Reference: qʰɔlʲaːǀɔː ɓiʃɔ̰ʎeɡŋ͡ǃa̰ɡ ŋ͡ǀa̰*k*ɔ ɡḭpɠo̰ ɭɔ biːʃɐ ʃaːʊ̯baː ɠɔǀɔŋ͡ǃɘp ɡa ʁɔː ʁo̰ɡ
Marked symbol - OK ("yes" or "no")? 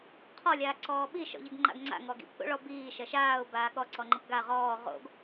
no